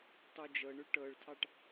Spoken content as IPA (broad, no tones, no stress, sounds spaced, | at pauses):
tˤ u d͡ʒ ɤ ɳ ʉ ʈ ɤ ɭ tʰ ɑ ʈ